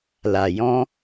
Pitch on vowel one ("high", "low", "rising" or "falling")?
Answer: low